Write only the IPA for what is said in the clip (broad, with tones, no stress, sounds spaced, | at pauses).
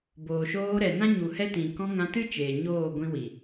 b oː˨ ʃ oː˧ ɾ ɛ˨ n ã˦ ɲ u˨ h ɛ˧ t ĩ˨ k ɔ̃˧ ŋ ã˧ t ɨ˦ t͡ʃ eː˨ ɲ oː˦˨ ɡʷ ĩ˧ w i˨